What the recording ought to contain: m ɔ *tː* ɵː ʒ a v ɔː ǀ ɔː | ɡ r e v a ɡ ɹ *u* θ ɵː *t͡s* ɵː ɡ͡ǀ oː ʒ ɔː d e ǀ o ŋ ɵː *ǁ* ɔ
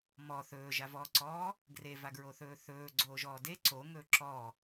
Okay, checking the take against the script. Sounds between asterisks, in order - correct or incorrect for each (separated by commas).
incorrect, incorrect, incorrect, correct